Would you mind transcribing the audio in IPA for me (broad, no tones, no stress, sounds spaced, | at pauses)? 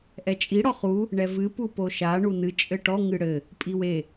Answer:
ʔ ɛ t͡ʃʼ i ɽ ɔ χ u | ɳ ɛ v ɨ p u p o ʃ a ɳ u n ɨ t͡ʃʼ ɘ ʈ ɔ ŋ ɨ ɽ ɘ | pʼ i w e